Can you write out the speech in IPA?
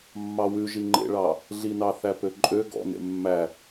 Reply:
mːɑwʉ ʒiŋ͡ǃḛɭɑ | ɮinɑ θæpøǃʼø ɡɔ̰ nḛmːæ

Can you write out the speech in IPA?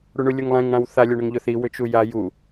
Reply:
ɽuɳulʲuŋlˠɛ̃ŋ ɽãwθa lʲøɳʊŋʎʊθi wʏt͡ʃuja ju

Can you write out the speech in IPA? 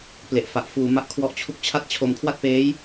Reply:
ple˨˩ʔ fa˨˩ʔfuː˧ma˥˩ʔkʰwɔ˦˥ʔ t͡ɕʰu˦˥k̚t͡ɕʰa˥˩t̚ t͡ɕʰo˧m kʰwa˥˩t̚peː˦˥j

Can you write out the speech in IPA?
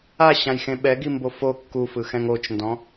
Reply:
aɕãjxẽ ɓɛɡimbo fo kːufɯxɛ̃ŋ ot͡ʃndɔ̃

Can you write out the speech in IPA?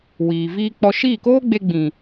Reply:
wiː˨viː˧k͡pɔ˧ ʃiː˦˨koː˦ɡ͡be˧ɡ͡bĩ˨

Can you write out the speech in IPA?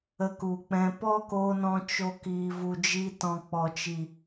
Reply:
ə˧ku˨k͡pɛ̃˧ pɔ˦ko˧nɔ̃˧ t͡ʃo˧ kiː˨vu˨d͡ʒi˧tɔ̃˨ k͡pɔ˨t͡ʃi˨

